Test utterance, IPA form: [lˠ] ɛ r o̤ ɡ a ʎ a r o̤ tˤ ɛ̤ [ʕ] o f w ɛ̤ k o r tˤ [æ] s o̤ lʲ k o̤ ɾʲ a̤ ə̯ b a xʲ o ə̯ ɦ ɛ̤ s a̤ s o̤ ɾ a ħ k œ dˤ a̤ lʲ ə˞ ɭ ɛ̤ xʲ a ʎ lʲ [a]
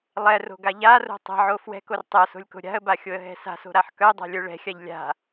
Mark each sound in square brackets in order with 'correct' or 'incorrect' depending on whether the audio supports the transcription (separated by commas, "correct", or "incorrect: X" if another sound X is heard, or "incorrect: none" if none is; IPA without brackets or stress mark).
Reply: correct, correct, incorrect: œ, incorrect: a̤